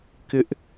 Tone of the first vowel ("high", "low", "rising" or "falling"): high